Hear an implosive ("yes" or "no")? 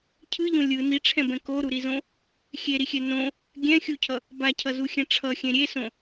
no